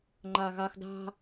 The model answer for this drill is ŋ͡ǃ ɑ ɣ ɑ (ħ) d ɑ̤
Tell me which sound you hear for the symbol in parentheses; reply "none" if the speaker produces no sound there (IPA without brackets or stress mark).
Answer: x